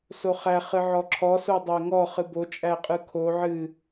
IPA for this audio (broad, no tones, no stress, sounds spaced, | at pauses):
s o χ æ χ ɨ ʕ ɔ ǁʰ ɔ s o dˤ æ ŋ ɔ χ ɨ b o t͡ʃʼ æ qʼ ɯ kʰ o ʕ ɨ